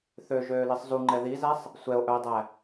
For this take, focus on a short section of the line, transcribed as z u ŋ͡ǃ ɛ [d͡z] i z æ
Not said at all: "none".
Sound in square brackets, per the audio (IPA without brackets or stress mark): ð